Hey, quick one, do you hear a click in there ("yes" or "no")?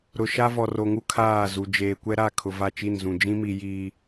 no